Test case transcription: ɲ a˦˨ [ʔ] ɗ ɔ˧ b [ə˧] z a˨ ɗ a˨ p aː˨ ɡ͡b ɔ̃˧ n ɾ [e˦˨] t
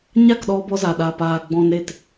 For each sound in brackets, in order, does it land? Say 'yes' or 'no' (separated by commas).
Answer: no, no, yes